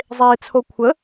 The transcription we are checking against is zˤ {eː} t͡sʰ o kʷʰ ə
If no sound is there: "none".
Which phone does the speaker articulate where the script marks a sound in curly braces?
eː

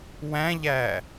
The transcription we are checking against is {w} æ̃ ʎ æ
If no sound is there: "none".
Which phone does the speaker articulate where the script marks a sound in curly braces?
w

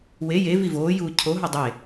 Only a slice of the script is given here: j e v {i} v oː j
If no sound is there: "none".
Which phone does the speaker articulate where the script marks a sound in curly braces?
i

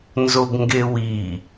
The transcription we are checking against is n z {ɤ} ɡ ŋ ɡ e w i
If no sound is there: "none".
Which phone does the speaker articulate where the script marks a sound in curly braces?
o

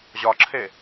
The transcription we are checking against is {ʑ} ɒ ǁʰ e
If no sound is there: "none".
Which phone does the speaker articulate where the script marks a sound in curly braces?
ʑ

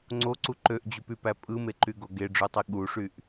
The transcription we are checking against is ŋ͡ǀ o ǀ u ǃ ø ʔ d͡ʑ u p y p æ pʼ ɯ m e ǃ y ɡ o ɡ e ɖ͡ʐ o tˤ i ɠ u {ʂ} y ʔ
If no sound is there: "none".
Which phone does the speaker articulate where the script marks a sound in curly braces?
ʂ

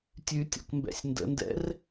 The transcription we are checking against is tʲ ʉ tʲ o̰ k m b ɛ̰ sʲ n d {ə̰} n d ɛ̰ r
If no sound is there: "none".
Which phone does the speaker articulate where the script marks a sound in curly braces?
ə̰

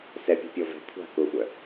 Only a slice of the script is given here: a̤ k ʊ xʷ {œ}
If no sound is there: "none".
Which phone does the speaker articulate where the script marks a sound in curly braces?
œ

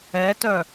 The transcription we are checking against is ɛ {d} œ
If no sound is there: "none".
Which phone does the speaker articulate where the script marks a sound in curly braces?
t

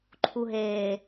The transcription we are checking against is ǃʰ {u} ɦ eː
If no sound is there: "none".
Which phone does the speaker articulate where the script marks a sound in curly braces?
u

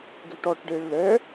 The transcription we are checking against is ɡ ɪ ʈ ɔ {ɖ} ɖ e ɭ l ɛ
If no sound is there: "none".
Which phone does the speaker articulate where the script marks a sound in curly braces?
ʈ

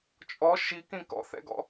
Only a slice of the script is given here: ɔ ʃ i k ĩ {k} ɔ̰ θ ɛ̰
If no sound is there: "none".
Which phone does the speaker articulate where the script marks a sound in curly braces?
k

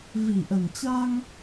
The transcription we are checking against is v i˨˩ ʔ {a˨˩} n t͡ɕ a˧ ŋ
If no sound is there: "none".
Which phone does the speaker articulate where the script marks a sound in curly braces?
ə˨˩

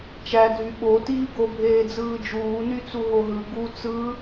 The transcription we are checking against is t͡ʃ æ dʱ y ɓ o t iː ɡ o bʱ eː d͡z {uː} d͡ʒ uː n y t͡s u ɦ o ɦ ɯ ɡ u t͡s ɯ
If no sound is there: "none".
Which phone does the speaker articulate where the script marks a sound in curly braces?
ɯː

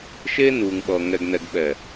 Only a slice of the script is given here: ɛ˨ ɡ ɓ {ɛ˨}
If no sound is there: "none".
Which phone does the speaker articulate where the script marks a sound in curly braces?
ɛ˨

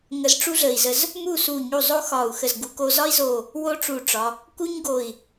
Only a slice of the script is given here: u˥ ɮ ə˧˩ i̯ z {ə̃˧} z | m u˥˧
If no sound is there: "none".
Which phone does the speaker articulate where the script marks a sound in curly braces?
ə˧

